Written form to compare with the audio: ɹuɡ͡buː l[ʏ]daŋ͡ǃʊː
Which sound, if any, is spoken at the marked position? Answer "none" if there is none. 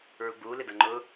ɪ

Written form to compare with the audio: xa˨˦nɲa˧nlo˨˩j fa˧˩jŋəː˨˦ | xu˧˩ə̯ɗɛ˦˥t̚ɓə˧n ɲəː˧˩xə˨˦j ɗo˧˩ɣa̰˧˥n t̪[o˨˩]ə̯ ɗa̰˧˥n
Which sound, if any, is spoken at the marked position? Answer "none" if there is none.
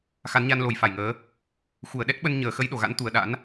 u˨˩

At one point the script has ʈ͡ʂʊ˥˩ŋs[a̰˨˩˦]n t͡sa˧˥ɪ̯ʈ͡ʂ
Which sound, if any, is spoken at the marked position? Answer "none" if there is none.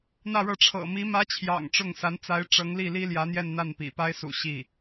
a˧˥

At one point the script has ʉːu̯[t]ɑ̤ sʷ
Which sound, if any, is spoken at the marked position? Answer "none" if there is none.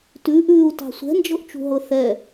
t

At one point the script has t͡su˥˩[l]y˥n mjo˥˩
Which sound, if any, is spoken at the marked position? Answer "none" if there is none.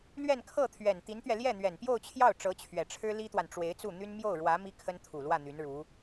n̪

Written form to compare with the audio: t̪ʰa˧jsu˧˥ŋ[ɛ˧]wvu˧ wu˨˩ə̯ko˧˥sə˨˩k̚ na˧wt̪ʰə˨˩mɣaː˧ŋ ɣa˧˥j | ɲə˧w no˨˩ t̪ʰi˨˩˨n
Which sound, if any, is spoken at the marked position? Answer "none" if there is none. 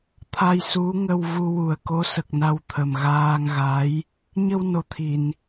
ə˧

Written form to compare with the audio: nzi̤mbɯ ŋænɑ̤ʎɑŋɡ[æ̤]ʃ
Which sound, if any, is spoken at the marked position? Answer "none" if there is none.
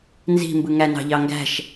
æ̤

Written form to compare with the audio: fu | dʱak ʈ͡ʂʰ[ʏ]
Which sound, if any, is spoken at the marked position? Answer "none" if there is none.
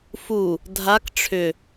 ʏ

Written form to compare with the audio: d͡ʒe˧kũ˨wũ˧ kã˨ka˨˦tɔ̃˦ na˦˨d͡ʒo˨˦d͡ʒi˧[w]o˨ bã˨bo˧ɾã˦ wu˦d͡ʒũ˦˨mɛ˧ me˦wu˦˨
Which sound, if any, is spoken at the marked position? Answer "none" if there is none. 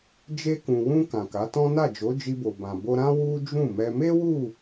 b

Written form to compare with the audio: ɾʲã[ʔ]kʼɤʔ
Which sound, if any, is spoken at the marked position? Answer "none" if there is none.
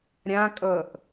none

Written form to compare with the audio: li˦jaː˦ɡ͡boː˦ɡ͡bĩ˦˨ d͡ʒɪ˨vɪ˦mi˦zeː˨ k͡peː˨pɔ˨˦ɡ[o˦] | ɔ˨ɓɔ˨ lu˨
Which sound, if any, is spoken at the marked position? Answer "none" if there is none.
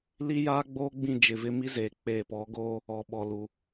oː˦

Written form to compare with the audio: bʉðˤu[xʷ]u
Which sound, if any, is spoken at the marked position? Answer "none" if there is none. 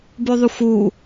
xʷ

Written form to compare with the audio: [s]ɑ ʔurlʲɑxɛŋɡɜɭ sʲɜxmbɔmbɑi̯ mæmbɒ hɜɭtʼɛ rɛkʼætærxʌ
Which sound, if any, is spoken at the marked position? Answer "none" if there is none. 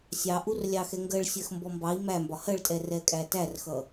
sʲ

